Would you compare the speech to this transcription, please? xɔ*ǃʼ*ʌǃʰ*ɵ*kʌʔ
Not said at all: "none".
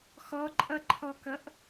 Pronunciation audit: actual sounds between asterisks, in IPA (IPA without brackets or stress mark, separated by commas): ǃʼ, ɔ